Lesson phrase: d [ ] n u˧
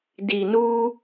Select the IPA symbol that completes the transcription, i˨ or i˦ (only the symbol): i˨